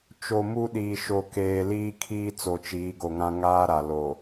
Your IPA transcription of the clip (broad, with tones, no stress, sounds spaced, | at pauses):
t͡ʃ o˨ m u˦ ɗ iː˨ ʃ o˨ k eː˨ l iː˦ kʰ iː˦ t͡s o˨ t͡ʃ iː˨˦ ɡ o˨ ŋ ã˦ ŋ aː˦ ɾ a˨ l o˨